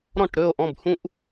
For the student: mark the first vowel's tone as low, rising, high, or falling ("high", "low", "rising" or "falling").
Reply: falling